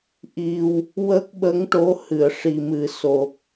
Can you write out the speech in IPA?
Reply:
ʔ i˧ w | w ə˦˥ k̚ ɓ ə˧˥ ŋ ʈ o˧˥ h ɨ˨˩˨ ə̯ ʂ i˨˩ m ɨ˨˩ s o˨˩ k̚

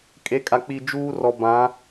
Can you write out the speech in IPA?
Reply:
kʼ e˨˦ kʼ a˨ k͡p i˨ d͡ʒ uː˦ r ɔ˨ b ã˨˦

